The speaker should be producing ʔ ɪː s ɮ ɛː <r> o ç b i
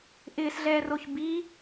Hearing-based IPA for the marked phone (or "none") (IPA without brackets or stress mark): r